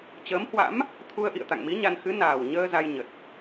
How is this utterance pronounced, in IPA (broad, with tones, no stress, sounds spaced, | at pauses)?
t͡ɕ əː˨˦ m h w a̰˧˥ m | t̪ʰ u˧ ə̯ ʔ ḭ˧˨ ə̯ t̪ a̰˧˨ ŋ m i˨˦ ɲ a˧ n x ɨ˨˦ n aː˨˩ w ɲ əː˧ z a˧ j ɲ ə˨˩ t̚